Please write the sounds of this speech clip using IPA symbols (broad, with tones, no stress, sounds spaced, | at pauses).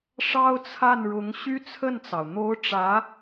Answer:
ʂ ɑ˥ ʊ̯ t͡sʰ a˥˩ n ɻ ʊ˧˥ ŋ ɕ y˥ t͡sʰ ə˥˩ n t͡s ɑ˩ ʊ̯ n̪ o˧˥ ʊ̯ ʈ͡ʂ ä˧˥